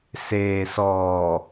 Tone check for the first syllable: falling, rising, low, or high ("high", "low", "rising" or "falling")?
low